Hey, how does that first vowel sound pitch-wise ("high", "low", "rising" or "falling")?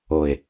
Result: low